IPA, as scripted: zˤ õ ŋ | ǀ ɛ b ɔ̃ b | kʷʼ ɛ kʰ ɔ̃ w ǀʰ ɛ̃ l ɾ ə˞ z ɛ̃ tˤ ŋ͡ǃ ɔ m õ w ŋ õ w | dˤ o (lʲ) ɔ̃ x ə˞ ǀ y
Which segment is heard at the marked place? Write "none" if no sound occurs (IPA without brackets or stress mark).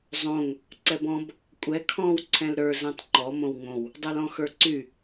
l